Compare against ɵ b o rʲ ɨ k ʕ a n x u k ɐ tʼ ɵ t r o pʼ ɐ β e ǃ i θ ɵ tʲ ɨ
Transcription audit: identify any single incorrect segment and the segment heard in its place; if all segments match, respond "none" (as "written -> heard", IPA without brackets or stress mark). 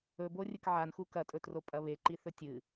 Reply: none